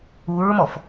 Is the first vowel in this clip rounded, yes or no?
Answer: yes